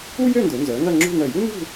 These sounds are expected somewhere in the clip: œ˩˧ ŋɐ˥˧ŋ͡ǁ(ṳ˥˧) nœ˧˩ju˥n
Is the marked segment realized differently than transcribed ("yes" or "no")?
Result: no